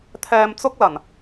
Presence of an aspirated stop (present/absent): present